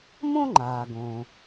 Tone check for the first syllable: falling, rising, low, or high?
high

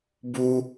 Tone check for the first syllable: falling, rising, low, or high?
high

